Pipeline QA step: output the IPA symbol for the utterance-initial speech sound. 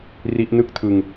r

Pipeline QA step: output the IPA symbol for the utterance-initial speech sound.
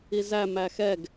i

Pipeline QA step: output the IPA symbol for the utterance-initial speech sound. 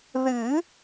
ð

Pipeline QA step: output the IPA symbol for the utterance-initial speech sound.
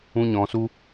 ũ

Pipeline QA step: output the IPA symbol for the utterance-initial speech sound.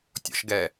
tʲ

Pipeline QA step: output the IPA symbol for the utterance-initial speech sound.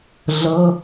ɮ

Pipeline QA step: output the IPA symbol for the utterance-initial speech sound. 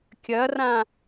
kʲ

